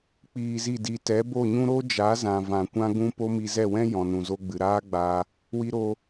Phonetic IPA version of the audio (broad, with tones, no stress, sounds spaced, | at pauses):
k͡p iː˧ z i˦˨ d i˧ t ɛ˨˦ b o˦˨ ɲ ũ˦ ɾ o˦ d͡ʒ a˨˦ z ã˨ v ã˨ kʷ ã˧ ɡ ũ˦ p o˦ m i˧ z ɛ˦˨ w ɛ̃˦ j ɔ̃˨ n ũ˨ z o˧ ɡ͡b ɨ˨ ɾ aː˦ ɡ͡b a˧ | w i˧ ɾ o˧